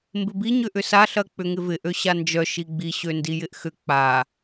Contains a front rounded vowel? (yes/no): yes